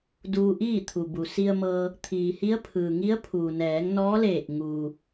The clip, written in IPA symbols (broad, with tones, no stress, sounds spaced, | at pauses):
d uː˧ ʔ iː˥˨ t̪ʰ u˩ b u˩ s i˧ ə̯ m ɤː˧ | t̪ʰ iː˩ h i˧˥ ə̯ pʰ ɯː˩ ŋ i˧˥ ə̯ pʰ uː˩ n ɛː˩˧ ŋ n ɔː˧˥ l eː˧˩ k̚ ŋ uː˩